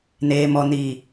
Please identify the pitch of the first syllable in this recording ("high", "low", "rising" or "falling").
low